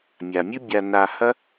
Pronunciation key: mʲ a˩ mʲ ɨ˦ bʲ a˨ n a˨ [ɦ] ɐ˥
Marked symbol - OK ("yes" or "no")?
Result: no